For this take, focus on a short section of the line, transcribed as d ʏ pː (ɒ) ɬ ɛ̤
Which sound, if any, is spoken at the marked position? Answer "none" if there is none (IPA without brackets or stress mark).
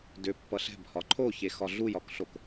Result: ʌ